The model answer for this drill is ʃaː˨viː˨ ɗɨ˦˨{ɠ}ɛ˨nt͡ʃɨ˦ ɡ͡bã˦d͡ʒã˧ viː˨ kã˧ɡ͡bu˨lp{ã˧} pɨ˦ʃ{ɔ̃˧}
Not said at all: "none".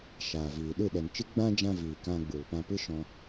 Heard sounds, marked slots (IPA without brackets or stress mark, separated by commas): ɗ, ã˧, ɔ̃˧